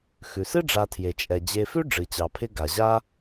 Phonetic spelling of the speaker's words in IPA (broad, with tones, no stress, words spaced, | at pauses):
xʉ˩sɨ˥ɖ͡ʐa˨tʰje˩ t͡ʃʼɛ˩d͡ʑe˨fʉ˥ ɖ͡ʐɨ˩t͡ɕɑ˩pʰɪ˦ ɡa˩ʑa˥